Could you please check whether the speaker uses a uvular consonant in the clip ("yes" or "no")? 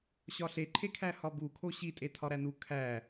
no